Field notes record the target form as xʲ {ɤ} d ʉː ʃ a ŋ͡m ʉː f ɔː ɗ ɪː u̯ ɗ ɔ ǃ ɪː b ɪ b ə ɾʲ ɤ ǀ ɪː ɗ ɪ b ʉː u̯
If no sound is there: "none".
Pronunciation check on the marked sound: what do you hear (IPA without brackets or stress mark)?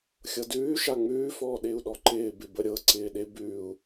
ɤ